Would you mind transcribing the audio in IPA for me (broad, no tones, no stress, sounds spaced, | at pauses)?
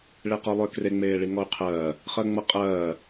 ɭ e q ɔ lˠ ʏː k r e ŋ͡m eː ɭ i ŋ ɔ y̯ qʰ ɜː | χ ɜ ŋ͡m ɤ qʼ ɜː